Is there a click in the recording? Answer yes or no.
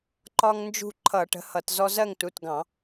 yes